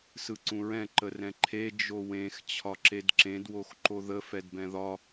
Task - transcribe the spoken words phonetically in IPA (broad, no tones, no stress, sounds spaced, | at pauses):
s ɯ ǀ ũ ɹ ɛ̃ ǃ ə r ɛ̃ ǃʰ e d͡ʒ o w ẽ x t͡ɕʰ ɒ ǁ e d ǁ ẽ d w o x ǃ o ð ə f ɛ d b ɛ̃ ð ɒ